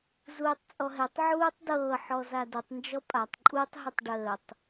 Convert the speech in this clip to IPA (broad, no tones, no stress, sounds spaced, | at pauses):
z uː tˤ t͡sʼ ɔ ɦ ɛ tˤ ʕ uː tˤ d ɤː ħ ɔ z a d ə tˤ n d͡ʒ ɔ pʼ a tˤ ǃʼ u tˤ ɦ ə tˤ ɖ əː tˤ